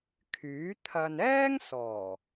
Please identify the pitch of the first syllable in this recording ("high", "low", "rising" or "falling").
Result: rising